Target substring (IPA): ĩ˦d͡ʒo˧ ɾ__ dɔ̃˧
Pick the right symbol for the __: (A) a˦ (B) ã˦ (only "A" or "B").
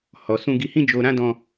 B